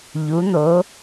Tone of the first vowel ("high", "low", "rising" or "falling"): rising